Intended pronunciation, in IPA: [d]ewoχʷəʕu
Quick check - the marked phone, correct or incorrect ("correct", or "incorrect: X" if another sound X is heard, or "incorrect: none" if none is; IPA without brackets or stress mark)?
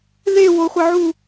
incorrect: ð